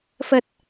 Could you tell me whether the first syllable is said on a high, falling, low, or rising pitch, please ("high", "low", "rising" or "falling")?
low